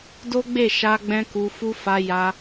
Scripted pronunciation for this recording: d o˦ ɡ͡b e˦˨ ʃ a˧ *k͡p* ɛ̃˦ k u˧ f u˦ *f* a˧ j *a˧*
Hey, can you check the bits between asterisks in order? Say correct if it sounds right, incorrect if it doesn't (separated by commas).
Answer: incorrect, correct, correct